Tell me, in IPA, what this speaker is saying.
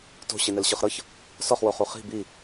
to̤ ɕinɛlɕɯχɾɤç | sɔχ woχuχi̤ bi

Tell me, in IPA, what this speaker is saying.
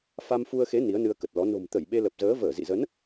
fa˧mfu˧ə̯xe˨˦ ni˨˦ə̯nɨ˧ə̯kə˨˩t̚lɔ˨˦ no̤˨˩mt̪ə˧˩j ɓe˧lə˨˩p̚zəː˨˦ vəː˧˩zḭ˧˨zə˨˦n

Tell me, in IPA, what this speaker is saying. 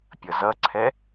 pʲʌzʌǀʰɛ

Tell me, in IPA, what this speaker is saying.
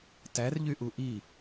tærʎyʔu ʔi

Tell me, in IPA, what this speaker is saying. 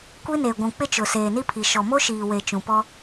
kʷi˦ne˨ɡʷũ˨ k͡pɪ˦t͡ʃʊ˨ seː˨ni˦pʰi˨ ʃɔ˨mo˦ʃiː˨we˨ t͡ʃũ˨pɔ˦

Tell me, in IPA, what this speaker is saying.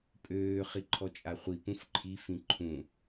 pʼøː χiǃʰɔt͡ʃʼaχʷi pũfǃʰi fĩǃʰũ

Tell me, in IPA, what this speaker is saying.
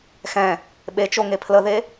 xɛ̃ | ɓet͡ʃoŋe pʰləðe

